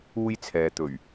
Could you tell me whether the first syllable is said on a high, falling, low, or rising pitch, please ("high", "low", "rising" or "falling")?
high